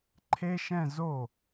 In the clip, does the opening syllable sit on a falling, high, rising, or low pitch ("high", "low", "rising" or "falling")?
high